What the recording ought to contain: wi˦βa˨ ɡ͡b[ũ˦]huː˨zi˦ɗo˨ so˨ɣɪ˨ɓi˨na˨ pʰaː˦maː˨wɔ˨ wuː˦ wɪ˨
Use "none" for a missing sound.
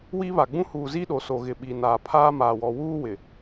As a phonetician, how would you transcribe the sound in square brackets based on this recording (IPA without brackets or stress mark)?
ũ˦